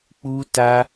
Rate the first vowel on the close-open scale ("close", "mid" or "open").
close